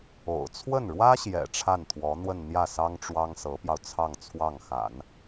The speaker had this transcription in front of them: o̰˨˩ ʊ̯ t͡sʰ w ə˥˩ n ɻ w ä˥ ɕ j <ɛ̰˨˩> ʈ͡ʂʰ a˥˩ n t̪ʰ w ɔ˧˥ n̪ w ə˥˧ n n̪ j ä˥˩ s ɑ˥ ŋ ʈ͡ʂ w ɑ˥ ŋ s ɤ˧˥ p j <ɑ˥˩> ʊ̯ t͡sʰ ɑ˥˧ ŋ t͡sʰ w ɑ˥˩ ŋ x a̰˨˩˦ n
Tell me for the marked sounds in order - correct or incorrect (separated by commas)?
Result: correct, incorrect